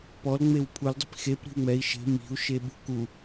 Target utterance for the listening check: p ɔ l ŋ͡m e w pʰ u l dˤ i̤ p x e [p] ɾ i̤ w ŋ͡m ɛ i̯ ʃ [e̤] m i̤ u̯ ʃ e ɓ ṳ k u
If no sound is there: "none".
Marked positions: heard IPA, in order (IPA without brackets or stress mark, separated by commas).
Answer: p, e̤